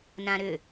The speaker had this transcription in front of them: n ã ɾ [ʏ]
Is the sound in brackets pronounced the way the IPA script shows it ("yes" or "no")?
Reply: yes